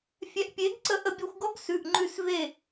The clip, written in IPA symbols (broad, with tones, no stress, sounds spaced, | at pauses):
fʲ ɛ˧ ʔ pʲ e˨˥ ɡ ǀ ə˧ ʔ ə˧ bʲ ɔ˧ xʷ ɡ ɔ˥ ɡ s ʉ˩˧˩ ʔ ŋ͡ǃ ʉ˧˩ s v e˧˩